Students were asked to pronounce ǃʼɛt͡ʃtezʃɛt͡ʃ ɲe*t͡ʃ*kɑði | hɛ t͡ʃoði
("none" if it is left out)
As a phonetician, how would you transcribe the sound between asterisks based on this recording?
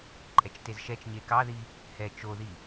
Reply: none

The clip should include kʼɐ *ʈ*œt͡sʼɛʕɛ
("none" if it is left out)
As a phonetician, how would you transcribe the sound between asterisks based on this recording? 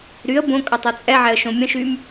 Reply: tˤ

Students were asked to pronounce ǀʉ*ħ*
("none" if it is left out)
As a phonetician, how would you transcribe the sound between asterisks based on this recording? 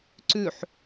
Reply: ħ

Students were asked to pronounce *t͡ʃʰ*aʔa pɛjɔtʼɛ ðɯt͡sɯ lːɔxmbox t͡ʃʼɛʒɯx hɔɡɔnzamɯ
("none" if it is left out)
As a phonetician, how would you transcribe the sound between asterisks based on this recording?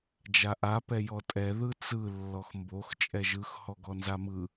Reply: d͡ʒ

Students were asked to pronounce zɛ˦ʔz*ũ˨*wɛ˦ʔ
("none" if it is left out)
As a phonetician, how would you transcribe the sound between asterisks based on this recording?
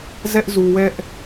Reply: u˨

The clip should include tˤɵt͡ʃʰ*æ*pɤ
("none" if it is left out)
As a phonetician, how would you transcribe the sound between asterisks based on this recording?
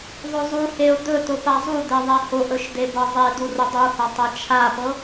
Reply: a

